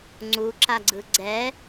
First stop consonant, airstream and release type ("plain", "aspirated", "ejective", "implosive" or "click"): click